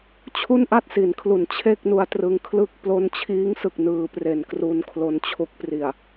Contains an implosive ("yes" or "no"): no